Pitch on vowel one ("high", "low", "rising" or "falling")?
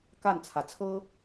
falling